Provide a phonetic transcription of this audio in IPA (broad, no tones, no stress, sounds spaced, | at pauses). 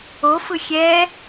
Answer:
o f ɯ xʲ ɛ